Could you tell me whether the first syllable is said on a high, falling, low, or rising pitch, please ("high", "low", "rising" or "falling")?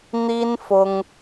high